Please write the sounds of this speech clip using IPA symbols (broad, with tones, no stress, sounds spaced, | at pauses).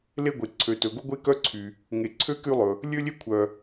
l e˥ ɡʷ e˩ ǀʰ ø˩ t ɵ˩ ɡ o˥ ɡʷ e˥ k œ˥ ǀʰ y˩ | ŋ e˩ ǀʰ ø˥ k y˥ lˠ ɵ˩ | lʲ ø˥ lʲ e˥ kʷʰ œ˩